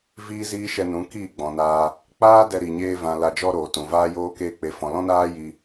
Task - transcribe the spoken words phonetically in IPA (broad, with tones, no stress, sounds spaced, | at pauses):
v iː˦ z iː˦ ʃ ɛ˧ n ũ˨˦ k iː˦˨ ɡ͡b ɔ̃˨ n aː˧ | k͡p aː˦ d ɛ˧ ɾ i˨ ɲ eː˧ v ã˨ l a˧ d͡ʒ ɔ˦ ɾ oː˨ t ũ˨ v aː˧ j oː˧ k eː˧ k͡p e˨ f ɔ̃˨ l ɔ̃˦ n aː˦ j i˧